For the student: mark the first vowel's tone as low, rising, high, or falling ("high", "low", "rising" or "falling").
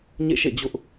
falling